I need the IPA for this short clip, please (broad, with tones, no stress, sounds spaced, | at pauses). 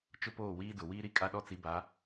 t͡ʃ ʊ˦ p oː˦˨ w iː˦ d ʊ˨ w iː˦ ɾ i˦ kʼ a˦ ɗ ɔ˦ t͡s i˨˦ b a˨˦